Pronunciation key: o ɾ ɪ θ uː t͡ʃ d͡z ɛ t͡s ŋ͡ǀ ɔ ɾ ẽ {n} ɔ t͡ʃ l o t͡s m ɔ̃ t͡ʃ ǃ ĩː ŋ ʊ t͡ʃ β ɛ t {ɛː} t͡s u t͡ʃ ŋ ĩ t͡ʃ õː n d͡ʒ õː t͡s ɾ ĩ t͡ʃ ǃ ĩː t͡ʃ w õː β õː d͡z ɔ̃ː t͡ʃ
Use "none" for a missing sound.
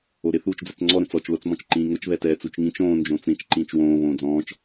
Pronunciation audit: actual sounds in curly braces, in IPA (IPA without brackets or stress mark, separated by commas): t͡s, ɛː